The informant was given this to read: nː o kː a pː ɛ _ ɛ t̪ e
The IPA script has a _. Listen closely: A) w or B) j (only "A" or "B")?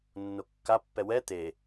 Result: A